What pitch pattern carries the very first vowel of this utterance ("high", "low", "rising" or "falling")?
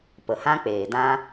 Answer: low